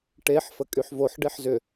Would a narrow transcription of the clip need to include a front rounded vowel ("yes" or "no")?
yes